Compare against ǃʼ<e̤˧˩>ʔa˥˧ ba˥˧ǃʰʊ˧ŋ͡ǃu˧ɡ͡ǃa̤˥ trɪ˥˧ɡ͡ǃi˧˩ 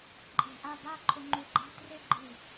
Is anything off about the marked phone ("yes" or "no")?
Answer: no